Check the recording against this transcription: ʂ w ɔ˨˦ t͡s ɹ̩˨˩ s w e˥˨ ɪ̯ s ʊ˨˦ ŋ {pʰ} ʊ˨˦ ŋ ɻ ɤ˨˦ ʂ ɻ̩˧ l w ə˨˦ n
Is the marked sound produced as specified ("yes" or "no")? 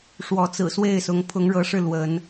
yes